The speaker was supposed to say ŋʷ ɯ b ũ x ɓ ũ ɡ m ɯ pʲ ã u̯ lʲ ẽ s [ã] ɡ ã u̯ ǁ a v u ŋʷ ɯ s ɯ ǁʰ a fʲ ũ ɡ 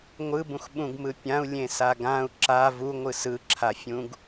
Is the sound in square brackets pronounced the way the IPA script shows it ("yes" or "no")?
no